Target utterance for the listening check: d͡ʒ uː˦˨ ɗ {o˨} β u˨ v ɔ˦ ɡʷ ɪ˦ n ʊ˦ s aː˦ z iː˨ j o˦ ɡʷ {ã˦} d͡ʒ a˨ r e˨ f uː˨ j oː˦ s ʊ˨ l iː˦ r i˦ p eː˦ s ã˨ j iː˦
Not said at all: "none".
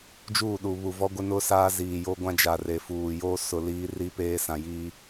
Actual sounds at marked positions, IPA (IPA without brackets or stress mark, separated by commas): u˨, ã˦